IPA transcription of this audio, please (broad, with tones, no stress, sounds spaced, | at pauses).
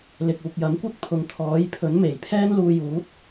l ɪ˨ k̚ uː˨ k̚ j ɐ˨˥ m kʷ ɐ˥ k̚ pʰ ʊ˨ ŋ t̪ʰ ɔː˨˥ j pʰ ɵ˨˥ n m e˨˩ j pʰ ɛː˥ n l uː˧ j uː˨˥ t̚